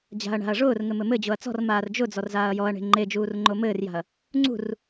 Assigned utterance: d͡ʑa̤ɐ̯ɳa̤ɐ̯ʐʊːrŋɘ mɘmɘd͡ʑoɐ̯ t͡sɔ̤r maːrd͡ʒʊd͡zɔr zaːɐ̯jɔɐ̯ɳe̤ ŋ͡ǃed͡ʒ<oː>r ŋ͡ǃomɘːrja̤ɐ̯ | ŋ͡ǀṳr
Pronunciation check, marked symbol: incorrect: uː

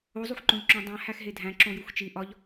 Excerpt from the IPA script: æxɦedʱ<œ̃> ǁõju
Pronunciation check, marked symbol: incorrect: æ̃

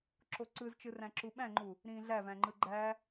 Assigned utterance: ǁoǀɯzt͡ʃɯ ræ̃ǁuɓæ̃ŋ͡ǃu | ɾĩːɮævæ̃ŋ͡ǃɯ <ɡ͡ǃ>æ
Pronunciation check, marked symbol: correct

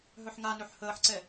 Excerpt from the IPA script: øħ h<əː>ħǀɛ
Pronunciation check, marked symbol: correct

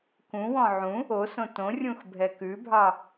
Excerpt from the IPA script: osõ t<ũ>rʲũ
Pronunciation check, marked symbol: incorrect: õ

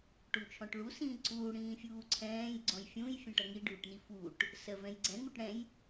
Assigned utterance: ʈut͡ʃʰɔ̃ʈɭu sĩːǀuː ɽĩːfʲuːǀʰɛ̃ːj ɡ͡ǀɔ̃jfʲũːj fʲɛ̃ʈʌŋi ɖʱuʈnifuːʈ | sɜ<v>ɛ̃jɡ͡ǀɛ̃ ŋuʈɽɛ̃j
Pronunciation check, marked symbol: correct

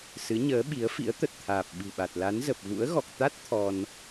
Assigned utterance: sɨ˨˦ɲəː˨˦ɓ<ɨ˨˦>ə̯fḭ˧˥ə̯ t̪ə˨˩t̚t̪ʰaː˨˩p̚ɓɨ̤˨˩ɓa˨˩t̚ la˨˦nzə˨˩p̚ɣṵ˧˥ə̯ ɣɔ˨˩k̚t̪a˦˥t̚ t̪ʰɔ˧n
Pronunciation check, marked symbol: incorrect: i˨˦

